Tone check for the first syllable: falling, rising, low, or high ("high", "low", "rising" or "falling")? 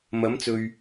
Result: rising